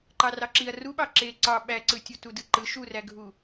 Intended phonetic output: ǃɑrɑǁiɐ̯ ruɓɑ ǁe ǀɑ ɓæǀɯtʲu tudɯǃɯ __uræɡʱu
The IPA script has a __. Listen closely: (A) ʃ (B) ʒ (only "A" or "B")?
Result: A